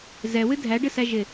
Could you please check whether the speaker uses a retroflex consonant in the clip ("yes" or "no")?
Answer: yes